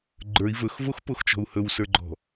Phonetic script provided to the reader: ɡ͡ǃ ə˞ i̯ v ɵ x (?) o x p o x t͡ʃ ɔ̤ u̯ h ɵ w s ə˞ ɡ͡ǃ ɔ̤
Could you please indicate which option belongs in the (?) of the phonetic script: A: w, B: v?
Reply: B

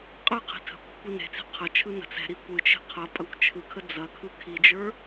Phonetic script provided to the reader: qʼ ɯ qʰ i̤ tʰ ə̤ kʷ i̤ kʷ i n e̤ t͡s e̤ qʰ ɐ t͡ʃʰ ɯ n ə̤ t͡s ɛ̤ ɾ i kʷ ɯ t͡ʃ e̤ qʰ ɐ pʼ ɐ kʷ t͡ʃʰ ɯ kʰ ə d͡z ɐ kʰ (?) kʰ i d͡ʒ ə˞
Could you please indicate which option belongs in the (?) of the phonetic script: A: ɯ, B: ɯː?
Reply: A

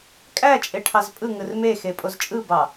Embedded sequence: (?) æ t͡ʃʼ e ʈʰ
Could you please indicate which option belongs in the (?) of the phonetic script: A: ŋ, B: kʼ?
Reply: B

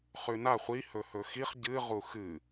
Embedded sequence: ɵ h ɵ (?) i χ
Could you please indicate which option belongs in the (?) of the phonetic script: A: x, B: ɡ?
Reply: A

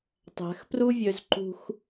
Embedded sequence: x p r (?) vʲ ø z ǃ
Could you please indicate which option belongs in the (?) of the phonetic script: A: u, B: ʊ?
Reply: A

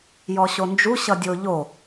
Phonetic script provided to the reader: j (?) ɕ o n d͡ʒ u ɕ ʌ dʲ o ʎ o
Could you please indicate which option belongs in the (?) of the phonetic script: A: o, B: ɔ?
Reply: B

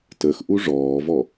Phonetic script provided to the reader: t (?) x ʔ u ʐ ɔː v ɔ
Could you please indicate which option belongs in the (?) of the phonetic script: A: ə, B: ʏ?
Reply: A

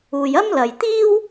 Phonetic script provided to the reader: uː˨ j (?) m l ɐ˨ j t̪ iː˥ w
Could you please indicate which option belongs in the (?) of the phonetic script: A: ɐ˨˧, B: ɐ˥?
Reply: B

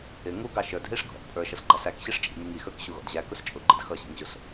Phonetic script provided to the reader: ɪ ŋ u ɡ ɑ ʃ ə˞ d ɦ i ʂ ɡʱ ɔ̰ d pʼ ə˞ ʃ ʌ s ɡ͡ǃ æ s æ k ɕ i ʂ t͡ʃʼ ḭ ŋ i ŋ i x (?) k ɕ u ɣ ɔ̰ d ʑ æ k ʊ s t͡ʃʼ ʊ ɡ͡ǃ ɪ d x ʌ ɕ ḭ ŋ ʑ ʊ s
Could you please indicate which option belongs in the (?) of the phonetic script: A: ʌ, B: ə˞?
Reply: B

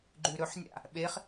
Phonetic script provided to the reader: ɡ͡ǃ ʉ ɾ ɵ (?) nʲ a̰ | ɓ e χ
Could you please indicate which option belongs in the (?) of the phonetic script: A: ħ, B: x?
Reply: A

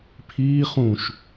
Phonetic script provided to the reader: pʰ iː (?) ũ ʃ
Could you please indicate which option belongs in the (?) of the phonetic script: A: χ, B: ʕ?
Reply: A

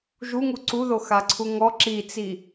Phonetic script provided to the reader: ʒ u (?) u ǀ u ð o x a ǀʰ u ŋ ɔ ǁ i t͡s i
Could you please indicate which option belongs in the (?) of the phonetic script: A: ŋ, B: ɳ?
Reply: A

